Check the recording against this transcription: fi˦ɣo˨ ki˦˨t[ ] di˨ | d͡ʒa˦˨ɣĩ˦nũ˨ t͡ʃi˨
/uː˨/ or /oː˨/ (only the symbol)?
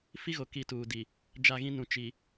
uː˨